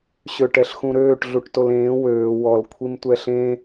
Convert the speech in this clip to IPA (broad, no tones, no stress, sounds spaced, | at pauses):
ɕ ø ʈ ɛ ɬ x ũ ɾ øː ʈ ɮ u ʈ t o l ẽː w øː w ɔ l kʷʰ i m tʷ ɛ ɬ ẽ